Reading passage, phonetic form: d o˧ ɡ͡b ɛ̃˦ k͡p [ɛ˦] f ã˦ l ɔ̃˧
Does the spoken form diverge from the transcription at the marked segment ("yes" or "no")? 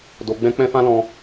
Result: yes